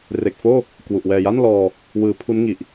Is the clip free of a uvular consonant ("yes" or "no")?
yes